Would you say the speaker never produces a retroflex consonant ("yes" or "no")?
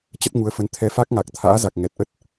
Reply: yes